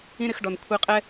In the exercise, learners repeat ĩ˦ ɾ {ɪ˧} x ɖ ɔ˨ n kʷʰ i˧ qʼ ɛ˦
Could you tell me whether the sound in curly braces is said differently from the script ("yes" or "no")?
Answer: no